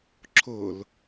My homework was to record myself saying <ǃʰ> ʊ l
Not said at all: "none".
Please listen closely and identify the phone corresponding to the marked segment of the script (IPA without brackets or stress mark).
ǁʰ